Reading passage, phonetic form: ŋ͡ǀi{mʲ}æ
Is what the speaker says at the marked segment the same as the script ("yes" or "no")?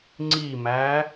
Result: no